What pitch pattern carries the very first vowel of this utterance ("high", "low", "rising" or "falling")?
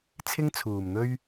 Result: high